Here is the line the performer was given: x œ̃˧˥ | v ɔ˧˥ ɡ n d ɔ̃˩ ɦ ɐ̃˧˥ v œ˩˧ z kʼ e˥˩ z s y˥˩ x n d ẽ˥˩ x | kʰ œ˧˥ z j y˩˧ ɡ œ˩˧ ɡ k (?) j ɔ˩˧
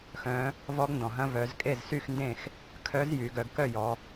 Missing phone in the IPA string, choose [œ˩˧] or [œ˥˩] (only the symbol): œ˥˩